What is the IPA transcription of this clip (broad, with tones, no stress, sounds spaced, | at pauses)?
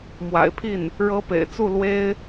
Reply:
m w a̰˨˩ ɪ̯ pʰ i˥˩ n | ɻ ɤ˧˥ p ḛ˨˩ ɪ̯ t͡s u˥˩ l w e˥ ɪ̯